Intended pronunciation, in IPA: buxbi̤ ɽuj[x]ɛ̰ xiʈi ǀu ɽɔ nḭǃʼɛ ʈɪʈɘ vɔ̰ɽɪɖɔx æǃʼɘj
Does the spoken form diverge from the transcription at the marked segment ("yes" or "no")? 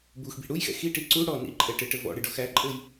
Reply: no